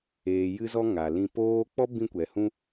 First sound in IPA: eː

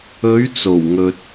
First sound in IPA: ɵ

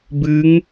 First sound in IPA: b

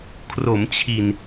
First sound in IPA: kʰ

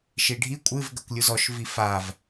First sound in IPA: ʃ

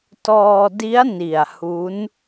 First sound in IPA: t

